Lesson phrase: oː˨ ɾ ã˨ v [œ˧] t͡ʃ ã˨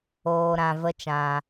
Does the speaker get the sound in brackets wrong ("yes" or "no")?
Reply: yes